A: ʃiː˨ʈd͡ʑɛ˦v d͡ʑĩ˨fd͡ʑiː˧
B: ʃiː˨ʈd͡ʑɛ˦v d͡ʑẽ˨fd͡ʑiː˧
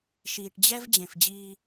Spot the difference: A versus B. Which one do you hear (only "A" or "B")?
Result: B